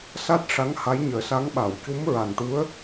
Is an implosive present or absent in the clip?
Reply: present